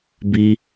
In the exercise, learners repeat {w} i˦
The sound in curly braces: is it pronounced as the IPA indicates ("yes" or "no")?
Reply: no